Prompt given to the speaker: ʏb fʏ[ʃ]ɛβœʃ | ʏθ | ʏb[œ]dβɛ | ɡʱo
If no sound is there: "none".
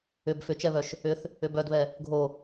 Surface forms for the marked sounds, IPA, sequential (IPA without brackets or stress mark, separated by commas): t͡ʃ, œ